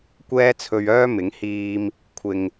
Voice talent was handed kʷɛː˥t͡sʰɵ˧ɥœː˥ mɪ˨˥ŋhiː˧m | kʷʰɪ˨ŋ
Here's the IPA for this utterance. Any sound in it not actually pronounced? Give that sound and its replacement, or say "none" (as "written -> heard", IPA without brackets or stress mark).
none